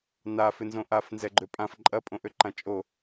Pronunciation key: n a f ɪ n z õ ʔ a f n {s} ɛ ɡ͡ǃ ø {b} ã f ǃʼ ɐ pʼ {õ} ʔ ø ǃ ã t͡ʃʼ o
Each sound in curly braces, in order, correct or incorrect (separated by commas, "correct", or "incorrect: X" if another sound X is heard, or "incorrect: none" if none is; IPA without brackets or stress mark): incorrect: z, incorrect: pʼ, correct